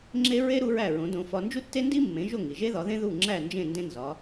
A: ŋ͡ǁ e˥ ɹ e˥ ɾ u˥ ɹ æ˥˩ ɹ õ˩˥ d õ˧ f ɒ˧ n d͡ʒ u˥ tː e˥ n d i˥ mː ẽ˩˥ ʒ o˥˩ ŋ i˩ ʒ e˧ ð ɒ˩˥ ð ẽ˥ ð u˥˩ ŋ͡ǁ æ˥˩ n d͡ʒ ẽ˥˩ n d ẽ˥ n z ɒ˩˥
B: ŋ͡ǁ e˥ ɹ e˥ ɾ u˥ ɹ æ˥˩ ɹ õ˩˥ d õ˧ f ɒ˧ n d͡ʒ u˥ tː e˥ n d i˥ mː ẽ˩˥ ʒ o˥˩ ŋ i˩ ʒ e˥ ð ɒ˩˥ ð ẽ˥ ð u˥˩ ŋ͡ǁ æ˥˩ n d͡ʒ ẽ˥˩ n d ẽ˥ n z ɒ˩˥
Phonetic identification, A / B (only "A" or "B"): B